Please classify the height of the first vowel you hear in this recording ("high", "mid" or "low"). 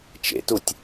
mid